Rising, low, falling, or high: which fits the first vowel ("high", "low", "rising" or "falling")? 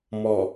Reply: low